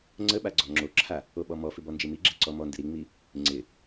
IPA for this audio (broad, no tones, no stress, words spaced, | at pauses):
ŋ͡ǀəɓa ɡ͡ǀɔŋ͡ǁoǁʰa | oɓɔmɔfɪ bɔnd͡ʒimiɡ͡ǁɪ ǀɔmɔndɪ ɾiŋ͡mi | ŋ͡ǀɪ